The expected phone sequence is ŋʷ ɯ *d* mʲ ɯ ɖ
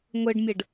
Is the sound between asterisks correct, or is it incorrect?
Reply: incorrect